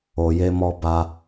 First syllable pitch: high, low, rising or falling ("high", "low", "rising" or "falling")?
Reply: low